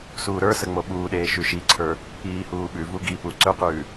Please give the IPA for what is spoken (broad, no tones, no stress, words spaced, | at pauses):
suːɾə˞sə ŋ͡moɓuːɗeː ʃʉʃiǀʰə˞ | iːhuːɓʉvu ɡipu ǀɵqʉː